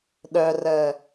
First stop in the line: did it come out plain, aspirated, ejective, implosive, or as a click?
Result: implosive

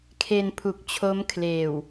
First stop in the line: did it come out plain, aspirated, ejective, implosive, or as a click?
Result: aspirated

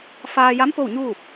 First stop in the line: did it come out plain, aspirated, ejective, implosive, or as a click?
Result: plain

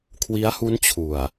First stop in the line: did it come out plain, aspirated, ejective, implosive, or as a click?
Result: aspirated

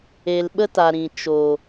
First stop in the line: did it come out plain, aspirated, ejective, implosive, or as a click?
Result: implosive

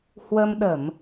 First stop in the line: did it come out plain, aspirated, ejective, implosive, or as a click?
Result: implosive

